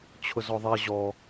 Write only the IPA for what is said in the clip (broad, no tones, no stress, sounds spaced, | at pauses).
t͡ɕʰ ʊ z ɔ ðˤ ɛ ʑ ɔ